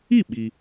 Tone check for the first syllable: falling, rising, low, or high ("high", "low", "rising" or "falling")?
falling